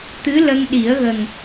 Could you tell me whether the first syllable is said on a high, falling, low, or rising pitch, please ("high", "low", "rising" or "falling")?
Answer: rising